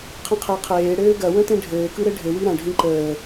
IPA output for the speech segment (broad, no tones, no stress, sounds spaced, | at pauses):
qʰ ə̃ qʰ e qʰ eː ɽ ɘː ɡ ɐ w ə̃ t ẽ ɖʱ ɘː k ɯ ɾ ɘ ɖʱ ɘ w i ɾ ɐ̃ ɖʱ ĩ ǃ əː